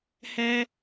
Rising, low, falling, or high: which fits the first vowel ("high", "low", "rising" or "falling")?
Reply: low